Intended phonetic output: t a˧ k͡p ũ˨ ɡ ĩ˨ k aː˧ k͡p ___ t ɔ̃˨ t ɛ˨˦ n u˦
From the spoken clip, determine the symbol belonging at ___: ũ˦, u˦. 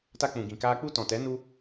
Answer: u˦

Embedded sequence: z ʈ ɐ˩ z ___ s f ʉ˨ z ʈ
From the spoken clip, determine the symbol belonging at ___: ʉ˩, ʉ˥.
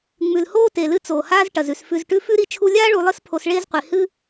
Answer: ʉ˩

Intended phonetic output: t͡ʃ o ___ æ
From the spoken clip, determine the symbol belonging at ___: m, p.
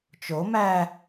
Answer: m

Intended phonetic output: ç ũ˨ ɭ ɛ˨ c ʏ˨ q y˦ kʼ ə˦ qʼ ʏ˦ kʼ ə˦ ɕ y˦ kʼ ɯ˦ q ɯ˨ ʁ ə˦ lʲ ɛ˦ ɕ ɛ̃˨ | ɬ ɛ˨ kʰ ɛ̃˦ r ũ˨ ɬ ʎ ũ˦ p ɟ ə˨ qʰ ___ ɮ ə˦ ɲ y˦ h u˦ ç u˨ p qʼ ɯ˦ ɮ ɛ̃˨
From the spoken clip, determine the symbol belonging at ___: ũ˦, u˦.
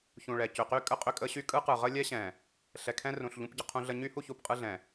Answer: ũ˦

